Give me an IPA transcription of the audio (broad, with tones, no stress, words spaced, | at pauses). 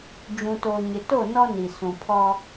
d͡ʒũ˨toː˨ ɲɪ˨to˦˨nɔ˦ ni˨ sũ˨pʰɔ˦